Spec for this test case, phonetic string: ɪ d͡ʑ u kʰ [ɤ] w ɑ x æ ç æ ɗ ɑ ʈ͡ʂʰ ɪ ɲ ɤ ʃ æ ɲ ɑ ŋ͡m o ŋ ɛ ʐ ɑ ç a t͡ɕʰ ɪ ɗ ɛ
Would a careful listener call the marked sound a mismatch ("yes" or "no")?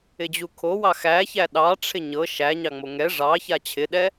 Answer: yes